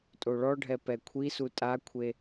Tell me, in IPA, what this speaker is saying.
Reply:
tʼ o ɭ ɔ ɖʱ ɛ p ɛ kʷʰ i s u tʼ a kʷʰ e

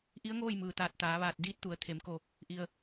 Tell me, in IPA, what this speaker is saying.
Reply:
ʔ i˧˥ ə̯ ŋ oː˥˨ j m ɯː˩ t̪ aː˧˩ t̚ t̪ aː˩˧ ʋ aː˧˩ t̚ d iː˧˥ t̚ t̪ u˩˧ ə̯ t̪ʰ e˩˧ m k o˧˩ | ʔ i˩ ə̯

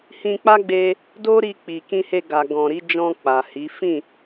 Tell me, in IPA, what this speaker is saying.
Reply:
h ĩ˧ k͡p a˦ ɡ͡b e˧ | d o˦ ɾ i˧ k͡p i˨ k ĩ˧ h e˧ ɡ a˨ ɡ ɔ̃˨ ɾ i˨˦ d͡ʒ ɔ̃˧ k͡p a˨ h i˨˦ f ĩ˦˨

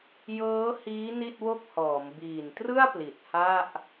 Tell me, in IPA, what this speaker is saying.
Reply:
j ɤː˦˥ h iː˦˥ n i˥˩ t̚ w o˥˩ k̚ h ɔː˩˦ m b iː˨˩ n t r ɯ˥˩ a̯ p l i˨˩ t̚ h a˥˩ ʔ

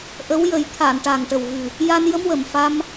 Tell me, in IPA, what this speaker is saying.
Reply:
ʔ ə˧˥ w j ə˨˩˦ j t̪ʰ a˨˩˨ n ʈ a˨˩ ŋ ʈ ə˨˩ w ɣ ɨ˨˩ | j a˧ n j ə˧˥ m w ə˨˩ m f a˧ m

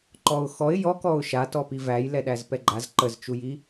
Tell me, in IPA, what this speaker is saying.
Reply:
ǃ ɔ ʊ̯ x ɔ ɪ̯ j ɔ k ɔ ʊ̯ ʃ a t ɔ p i v æ j l ɛ ɗ æ z p ɛ ɡ͡ǃ a z ǃ ə z t͡ʃ u j i

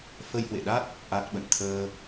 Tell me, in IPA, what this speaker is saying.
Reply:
f ə˧ j h w ḛ˧˨ ɗ a˦˥ t̚ | ʔ a˦˥ t̚ ɓ ə̰˧˨ n t̪ʰ əː˧

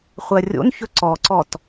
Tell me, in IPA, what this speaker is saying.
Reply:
χʷ ɜ rʲ o̰ n ç ɵ ǀ ɔ ǀ ɔ t

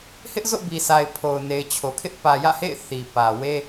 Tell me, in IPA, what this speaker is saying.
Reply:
h ɪ˦ ʔ z o̰˦˨ b i˨ sʰ a˨ ɪ̯ pʰ o˨ ʊ̯ n e˨ ɪ̯ t͡ɕʰ o˨ kʰ ɪ˦ ʔ p ä˨ j ä̰˦˨ h ḛ˦˨ ɪ̯ θ i˨ p ä˨ w e˦

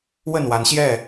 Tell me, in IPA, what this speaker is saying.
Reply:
w ə˥˨ n w a˨˦ n ɕ j ɛ˥˨

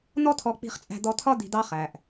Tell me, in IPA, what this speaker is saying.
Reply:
n̪ ɔ˦ t̪ʰ ɔ˧ k͡p i̤˧ χ t͡sʼ æ̤˧ d̪ ɔ˧ t̪ʰ ɒ˦ d̪ i̤˧ d̪ ɑ˦ χ æ˨ ʔ

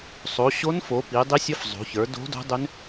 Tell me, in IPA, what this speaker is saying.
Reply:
sˤ o˩˧ ɕ o˧˥ n f o˩˧ p i˩˧ dˤ i˧˥ sʲ ə˧˥ f zˤ o̤˩˧ ç ə˞˩˧ d o̤˧˥ d o̤˧˥ dˤ ʏ˧˥ n

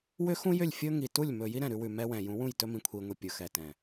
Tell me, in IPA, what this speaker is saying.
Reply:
w ʏ˦ x ũ˦ j ʏ˦˨ lʲ fʲ ɵ˦ ŋ i˨ t u˦˨ lʲ m ɵ˨ j i˦ ɾ ɛ̃˨ ɾ ʉ˦ w ʉ˨ m ɛ˦ w ɛ̃˨ j ũ˨˦ w ũ˦˨ j t ɵ˦ m ĩ˨ kʷʰ i˨ ŋʷ i˨ pʲ ɵ˨ x ɛ˨ t ɛ̃˨

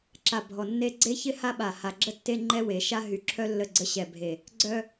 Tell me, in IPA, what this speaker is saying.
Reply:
ǁ a˨ bʱ ɔ˨ nː e˦ ɡ͡ǀ e˦ ç ɪ˦ h a˦ ɓ a˨ h a˨ ɡ͡ǁ ə˦ tː e˦ ŋ͡ǃ ɛ˦ w e˨ ʃ a˦ ɦ y˨ ǁʰ œ˦ lː ə˦˨ ɡ͡ǀ ə˦ ɕ ɛ˨ bʱ e˨ | ɡ͡ǀ œ˦

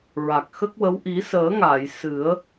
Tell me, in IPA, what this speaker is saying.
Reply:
ɹ a˨˩ k̚ x ə˦˥ k̚ w ə˧˥ w ʔ i˨˩˦ s əː˨˩˦ ŋ a˨˩˨ j s ɨ˨˩˦ ə̯

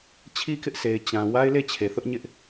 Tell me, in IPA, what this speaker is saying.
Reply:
t͡ɕʰ i˦ k ɪ˦ ʔ sʰ e˨ ɪ̯ t͡ɕ ã˨ w a˦ ɪ̯ l e˦˨ t͡ɕʰ e˨ θ ʊ˦ ʔ ɲ ɪ˦ ʔ

